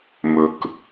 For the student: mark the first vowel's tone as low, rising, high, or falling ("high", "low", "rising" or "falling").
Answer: low